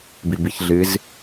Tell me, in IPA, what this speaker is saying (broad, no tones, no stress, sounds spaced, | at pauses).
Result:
b i b i ç ɮ ɨ z